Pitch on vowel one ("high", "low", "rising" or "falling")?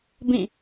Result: falling